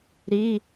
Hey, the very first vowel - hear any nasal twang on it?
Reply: no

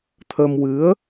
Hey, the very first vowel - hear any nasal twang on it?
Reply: no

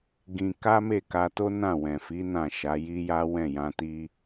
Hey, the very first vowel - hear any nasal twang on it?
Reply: yes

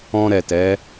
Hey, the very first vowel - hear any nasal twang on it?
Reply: yes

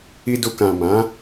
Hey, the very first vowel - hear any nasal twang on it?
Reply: no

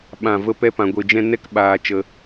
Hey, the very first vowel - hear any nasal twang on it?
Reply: yes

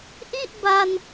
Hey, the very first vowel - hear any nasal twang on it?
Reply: no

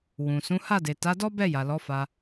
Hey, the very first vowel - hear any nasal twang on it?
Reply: yes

